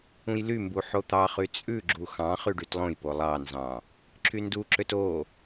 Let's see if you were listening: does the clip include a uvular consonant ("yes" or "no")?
yes